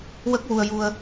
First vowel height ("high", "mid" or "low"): mid